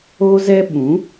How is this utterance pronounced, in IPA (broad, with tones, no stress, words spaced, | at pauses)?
o˦zɛ˦ ɓũ˨˦